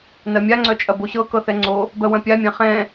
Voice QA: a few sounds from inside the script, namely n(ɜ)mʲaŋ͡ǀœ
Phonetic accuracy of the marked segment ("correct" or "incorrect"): correct